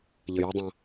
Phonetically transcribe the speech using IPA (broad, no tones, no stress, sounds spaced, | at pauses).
ʎ ə j ʏ dˤ ã